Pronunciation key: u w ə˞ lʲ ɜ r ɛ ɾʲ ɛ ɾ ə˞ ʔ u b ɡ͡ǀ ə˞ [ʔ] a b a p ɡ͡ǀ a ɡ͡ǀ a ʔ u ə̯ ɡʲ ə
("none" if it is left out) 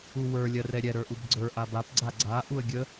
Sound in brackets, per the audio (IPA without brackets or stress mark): ʔ